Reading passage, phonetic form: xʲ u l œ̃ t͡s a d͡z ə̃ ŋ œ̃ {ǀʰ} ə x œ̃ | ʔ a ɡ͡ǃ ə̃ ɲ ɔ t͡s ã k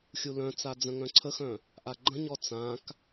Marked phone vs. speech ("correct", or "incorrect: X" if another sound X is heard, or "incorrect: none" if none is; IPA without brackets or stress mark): correct